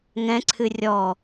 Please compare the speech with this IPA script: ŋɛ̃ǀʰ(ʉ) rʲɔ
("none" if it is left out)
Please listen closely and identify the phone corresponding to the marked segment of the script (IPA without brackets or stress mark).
ɨ